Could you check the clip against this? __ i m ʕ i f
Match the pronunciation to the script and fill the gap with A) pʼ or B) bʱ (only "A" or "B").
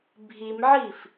B